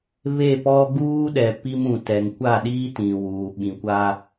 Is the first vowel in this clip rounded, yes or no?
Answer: no